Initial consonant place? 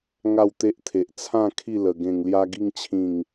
velar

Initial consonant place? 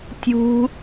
alveolar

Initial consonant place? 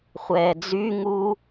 uvular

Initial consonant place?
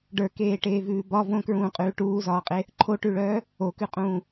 retroflex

